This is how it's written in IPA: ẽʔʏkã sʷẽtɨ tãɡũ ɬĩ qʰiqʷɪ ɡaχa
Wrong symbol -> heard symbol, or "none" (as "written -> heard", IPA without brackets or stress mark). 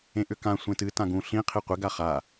none